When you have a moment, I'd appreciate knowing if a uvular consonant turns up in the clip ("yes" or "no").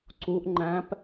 no